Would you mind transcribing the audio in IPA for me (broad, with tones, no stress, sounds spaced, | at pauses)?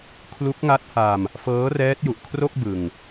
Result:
kʰ l u˦˥ k̚ ŋ a˦˥ t̚ h a˧ m | f ɤː˦˥ r ɛː˦˥ t̚ j u˨˩ ʔ kʰ r o˥˩ k̚ b ɯ˧ ŋ